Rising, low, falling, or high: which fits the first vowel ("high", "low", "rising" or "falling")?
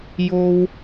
high